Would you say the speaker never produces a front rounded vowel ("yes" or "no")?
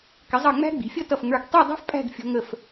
yes